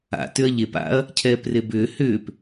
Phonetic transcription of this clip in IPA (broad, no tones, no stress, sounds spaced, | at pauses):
a̰ t ʏ ɐ̯ ʎ e p a̰ ɐ̯ | cʰ ɛː p r e b ʏː h ʏː p